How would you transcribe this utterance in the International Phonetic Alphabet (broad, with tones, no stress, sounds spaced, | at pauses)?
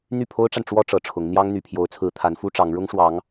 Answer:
n̪ y˥˩ pʰ o˥ ʊ̯ ʈ͡ʂ a˨ n ʈ͡ʂ w ɔ˥ ʈ͡ʂ ɤ˨˩ ʈ͡ʂʰ ʊ˧˥ ŋ n̪ j ɑ˥ ŋ n̪ y˨˩ pʰ j o˧˥ ʊ̯ t͡sʰ ɹ̩˧˥ t̪ʰ a˧˥ n f u˥ ʈ͡ʂ ɑ˧˥ ŋ ɻ ʊ˥ ŋ ʂ w ɑ˧˥ ŋ